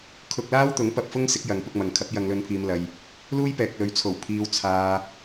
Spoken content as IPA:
kʰʊ˧k̚laː˥wt̪ʊ˨˥ŋ pɐ˧p̚fʊ˥ŋsɪ˨˥k̚jɐ˨˧ŋ pʊ˧k̚mɐ˨ŋkʰɐ˨˥p̚ jɐ˧ŋlɵ˧npʰiː˧mlɐ˧j | luː˥jpɛː˨k̚lɵ˨˧ɥt͡sʰo˨˩w pʰiː˧wt͡sʰaː˧

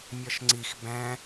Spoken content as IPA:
mʲɒʃŋ͡ǀix bæ̃

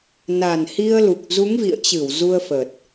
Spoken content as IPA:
na˨˩nhi˧ə̯lu˨˩k̚ zu˨˦ŋvḭ˧˨ə̯t͡ɕɨ˧˩w zu˧ə̯fə˨˩t̚

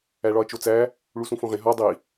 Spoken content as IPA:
æɭɒɐ̯t͡ʃot͡sæ | ɭusũfõʁẽ ɦɒ dˤi

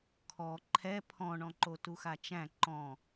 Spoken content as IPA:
kʰɔ ǃʰɛ pʰɔ̃ɳɔ̃ǃo tuxat͡ʃæ̃ ǃɔ̃

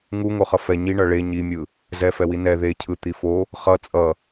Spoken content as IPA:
ŋu ŋoχʌfɛ ɲiɳʌ ɭe ɲimʲɯ | zɛfɛwi nɛ ðecʰɯ t̪ifo | χʌ t͡sʼʌ

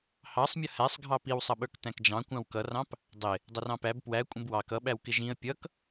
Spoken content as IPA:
hɑsˤmʲʌ hæsˤɡʱɑ piwsˤʌɓə˞k tæ̃kd͡ʒɑ̃kʷɑ̃w kʌrɑ̃p | dˤɪ | dˤʌrɑ̃pæb pwæ kʷʼə̃bwɑk ʌɓæw kɪʒĩə̯ pʲʌk

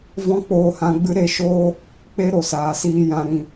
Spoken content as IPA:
vɔ̃˦k͡poː˧hã˧ɡ͡bɨ˦ ɾe˧ʃoː˦ | k͡pe˦ɾo˨saː˨siː˧ jã˧ɾĩ˧

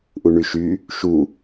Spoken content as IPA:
ʔuɳyʃy | ʃu

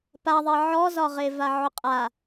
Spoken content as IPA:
paðˤɛ ʕɔzɒʁe vaʕʊqʼa

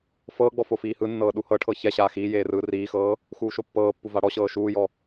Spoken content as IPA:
fɤːɡ͡bɔ fofiːhɯnːɤː ɗuhɤʈʰɤ çɛɕaː xiː jeːrɯːriːxɤː | xuːʃopːɤːpːu vaɽɔɕɤː ʃuːjɔ

